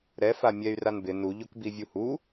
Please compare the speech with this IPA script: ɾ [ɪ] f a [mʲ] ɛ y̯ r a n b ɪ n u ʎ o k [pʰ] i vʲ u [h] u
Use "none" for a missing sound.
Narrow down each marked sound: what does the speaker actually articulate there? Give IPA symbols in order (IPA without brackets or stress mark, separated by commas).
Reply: ɛ, mʲ, b, h